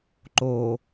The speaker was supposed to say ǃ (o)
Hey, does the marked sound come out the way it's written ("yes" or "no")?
no